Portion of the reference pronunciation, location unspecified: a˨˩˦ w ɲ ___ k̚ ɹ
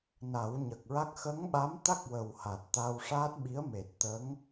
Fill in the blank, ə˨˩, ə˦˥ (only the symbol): ə˨˩